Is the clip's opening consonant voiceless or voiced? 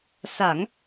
voiceless